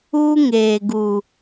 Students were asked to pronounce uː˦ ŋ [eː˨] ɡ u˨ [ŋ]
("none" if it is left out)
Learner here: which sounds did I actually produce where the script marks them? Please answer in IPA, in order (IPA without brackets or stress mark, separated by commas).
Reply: eː˨, none